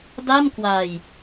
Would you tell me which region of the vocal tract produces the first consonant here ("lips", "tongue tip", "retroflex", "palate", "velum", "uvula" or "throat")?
tongue tip